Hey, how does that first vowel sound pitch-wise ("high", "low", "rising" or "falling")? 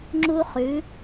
high